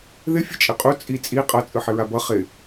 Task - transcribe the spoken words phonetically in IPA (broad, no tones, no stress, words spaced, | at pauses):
ðɪ fʲɯt͡ʃʼɪqʼu t͡sʼi t͡sʼi qʼʌ t͡sʼɯħɪɹabʌ χɪ